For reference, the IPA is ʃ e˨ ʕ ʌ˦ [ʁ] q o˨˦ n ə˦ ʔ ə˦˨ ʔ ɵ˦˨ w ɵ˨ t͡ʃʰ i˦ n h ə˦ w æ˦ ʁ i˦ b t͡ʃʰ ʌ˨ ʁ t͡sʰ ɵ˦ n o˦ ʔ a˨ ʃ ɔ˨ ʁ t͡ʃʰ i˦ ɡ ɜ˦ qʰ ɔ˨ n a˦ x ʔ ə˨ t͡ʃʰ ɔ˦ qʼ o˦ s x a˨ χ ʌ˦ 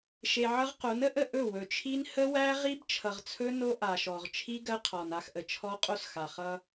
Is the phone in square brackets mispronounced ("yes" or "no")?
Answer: no